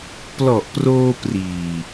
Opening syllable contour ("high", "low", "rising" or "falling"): low